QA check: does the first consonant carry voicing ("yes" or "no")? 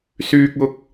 no